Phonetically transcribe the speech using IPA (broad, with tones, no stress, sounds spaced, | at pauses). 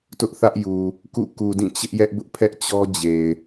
t ʊ˦ ʔ θ ä˦ ʔ j u˨ | k ṵ˦˨ k u˨ d ĩ˦˨ t͡ɕ ɪ˦ ʔ j ɛ˦ ʔ b ʊ˦ ʔ pʰ ɛ˦ ʔ t͡ɕ ɔ˦ d͡ʑ e˨ ɪ̯